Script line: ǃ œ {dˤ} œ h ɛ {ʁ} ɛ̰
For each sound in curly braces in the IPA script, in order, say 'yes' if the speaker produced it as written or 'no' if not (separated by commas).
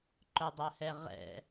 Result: yes, yes